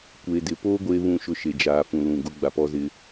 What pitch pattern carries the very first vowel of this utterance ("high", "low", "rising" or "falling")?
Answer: low